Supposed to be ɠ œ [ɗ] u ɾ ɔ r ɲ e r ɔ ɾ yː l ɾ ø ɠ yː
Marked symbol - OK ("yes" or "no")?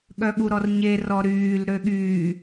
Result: no